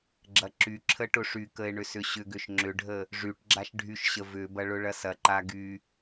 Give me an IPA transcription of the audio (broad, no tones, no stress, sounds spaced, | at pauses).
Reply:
ɡ͡ǁ ɐ ǁ y ǁʰ ə ʈ ʊ ʂ y k ə e̯ ɳ ʏ s ʏ ɕ ʏ ɡ ʏ ʃ ŋ͡ǁ ʏ ɖʱ ə | ʐ y ʈ ɡ͡ǁ a ʃ ɖʱ y ʃ ɕ ə v ʏ b ɐ ɭ ʊ ɭ ɐ s ɐ ǃ a ɡ y